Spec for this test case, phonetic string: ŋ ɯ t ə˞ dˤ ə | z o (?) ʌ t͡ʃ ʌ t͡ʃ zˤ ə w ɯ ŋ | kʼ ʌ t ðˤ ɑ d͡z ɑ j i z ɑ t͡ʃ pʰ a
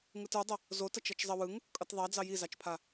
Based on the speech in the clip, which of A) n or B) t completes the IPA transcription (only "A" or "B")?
B